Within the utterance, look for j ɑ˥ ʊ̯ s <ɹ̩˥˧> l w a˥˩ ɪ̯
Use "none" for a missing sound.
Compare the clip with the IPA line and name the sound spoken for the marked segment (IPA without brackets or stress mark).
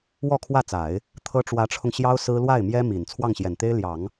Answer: ɹ̩˥